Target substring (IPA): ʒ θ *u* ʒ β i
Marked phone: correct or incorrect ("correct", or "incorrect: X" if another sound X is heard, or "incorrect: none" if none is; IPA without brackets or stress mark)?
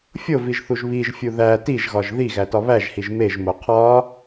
correct